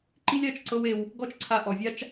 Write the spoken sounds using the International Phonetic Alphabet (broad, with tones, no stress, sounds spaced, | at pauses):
ǃ i˦ lʲ a˧ t͡ʃ ǀ ɤ˦ w e˧ w | ɡ ɔ˦ t͡ʃ ǀʰ a˧ ʔ ɔ˨ vʲ a˦ t͡ʃ